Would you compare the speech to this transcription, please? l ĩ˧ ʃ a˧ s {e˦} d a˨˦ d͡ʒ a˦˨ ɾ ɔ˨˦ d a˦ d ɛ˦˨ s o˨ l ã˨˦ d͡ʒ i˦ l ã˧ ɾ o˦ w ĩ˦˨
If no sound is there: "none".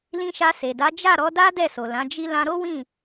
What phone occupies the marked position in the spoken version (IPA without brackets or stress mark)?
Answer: e˨